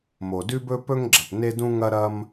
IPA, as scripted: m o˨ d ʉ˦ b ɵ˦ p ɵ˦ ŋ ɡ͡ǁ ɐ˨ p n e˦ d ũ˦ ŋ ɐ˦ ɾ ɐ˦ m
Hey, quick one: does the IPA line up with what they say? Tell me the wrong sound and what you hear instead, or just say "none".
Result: none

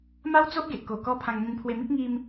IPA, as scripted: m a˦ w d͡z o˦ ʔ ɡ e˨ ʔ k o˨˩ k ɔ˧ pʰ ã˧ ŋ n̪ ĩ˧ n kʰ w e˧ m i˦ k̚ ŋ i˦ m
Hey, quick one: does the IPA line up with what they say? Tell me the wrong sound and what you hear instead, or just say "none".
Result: kʰ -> pʰ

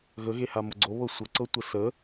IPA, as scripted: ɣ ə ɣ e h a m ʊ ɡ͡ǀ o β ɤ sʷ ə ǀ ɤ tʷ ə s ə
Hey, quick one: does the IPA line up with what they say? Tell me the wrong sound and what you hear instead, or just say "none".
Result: none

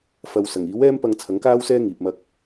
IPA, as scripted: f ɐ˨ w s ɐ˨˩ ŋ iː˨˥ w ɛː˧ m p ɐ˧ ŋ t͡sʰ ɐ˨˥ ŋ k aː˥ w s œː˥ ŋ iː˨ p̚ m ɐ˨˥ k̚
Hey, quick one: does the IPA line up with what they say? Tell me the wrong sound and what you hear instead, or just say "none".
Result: œː˥ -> ɛː˥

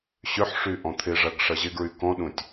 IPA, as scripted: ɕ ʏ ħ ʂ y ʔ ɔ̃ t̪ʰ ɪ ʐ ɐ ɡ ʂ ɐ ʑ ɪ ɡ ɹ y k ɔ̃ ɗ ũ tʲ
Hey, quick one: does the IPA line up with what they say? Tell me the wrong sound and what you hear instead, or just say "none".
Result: none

